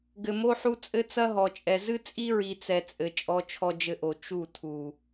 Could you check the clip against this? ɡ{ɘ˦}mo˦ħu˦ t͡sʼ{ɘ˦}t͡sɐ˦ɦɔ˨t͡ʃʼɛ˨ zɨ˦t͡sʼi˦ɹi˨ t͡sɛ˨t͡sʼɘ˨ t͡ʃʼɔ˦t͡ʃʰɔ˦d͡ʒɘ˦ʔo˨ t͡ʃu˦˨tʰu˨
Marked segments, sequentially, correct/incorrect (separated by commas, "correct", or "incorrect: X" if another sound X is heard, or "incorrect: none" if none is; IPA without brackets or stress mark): incorrect: ɘ˨, correct